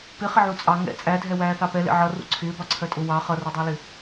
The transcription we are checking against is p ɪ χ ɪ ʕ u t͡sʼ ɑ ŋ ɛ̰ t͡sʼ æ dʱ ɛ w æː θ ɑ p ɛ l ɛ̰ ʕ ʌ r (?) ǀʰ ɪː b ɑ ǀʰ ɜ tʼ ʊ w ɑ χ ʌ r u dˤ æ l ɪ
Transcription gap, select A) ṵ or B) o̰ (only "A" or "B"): A